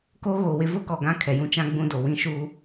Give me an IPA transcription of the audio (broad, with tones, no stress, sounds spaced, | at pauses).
k o˦ ɣ o˨ w ɪ˦ v ʊ˦ k ɔ˨ ɡ ã˦ kʰ ɛ˨ j ũ˦ t͡ʃ ã˦ ɡ͡b ũ˦ d o˨ w ĩ˦ ʃ u˦